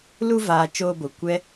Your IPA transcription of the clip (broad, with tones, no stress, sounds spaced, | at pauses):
l u˧ v aː˨ t͡ʃ oː˧ b o˨ kʷ ɛ˦